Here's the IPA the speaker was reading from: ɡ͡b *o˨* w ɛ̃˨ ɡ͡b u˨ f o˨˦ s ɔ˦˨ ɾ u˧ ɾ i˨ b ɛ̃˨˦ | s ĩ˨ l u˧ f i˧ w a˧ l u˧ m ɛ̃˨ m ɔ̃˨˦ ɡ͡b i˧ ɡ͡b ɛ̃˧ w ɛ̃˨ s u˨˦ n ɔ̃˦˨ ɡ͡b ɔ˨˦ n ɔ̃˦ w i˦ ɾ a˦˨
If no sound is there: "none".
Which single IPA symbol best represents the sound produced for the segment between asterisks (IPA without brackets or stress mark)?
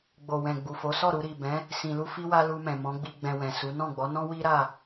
o˨